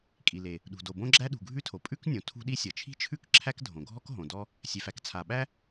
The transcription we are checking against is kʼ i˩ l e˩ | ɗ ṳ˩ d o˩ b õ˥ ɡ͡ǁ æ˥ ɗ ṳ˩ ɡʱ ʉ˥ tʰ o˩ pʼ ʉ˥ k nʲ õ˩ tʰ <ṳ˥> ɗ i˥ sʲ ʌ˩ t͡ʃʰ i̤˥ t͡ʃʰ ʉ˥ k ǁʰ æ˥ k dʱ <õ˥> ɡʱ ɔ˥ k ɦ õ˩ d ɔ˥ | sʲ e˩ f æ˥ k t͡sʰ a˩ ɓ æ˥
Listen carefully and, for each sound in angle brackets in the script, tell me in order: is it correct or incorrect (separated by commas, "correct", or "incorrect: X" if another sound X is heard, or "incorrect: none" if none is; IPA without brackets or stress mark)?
correct, incorrect: õ˩